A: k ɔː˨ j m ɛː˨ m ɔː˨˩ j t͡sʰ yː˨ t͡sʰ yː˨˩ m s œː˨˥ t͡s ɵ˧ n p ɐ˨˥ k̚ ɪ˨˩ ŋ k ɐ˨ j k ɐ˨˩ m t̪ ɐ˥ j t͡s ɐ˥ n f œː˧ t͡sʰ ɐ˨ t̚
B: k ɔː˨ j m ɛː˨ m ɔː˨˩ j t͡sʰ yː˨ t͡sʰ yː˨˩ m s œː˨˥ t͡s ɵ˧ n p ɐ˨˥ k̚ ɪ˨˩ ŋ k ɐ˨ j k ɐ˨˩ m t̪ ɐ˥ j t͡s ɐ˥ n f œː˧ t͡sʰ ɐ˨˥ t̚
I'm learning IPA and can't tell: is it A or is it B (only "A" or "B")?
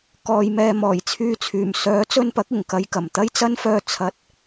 A